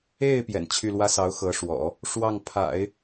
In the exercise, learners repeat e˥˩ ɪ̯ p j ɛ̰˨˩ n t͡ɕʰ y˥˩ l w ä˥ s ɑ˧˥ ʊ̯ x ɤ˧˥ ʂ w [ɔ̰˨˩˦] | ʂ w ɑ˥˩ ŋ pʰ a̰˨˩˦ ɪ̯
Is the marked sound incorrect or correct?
correct